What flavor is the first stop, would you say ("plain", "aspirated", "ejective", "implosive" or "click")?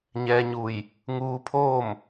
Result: aspirated